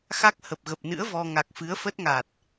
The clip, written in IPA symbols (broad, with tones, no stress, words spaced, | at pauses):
xa˦˥k̚hə˨˩p̚ɣə˨˩p̚nɨ̰˧˥ə̯ vɔ˧ ŋa˨˩k̚fɨ˨˦ə̯fə˦˥t̚ŋa˨˩t̚